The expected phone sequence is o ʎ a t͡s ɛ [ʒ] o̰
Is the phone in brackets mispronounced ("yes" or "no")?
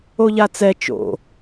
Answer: yes